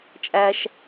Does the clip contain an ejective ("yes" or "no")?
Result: yes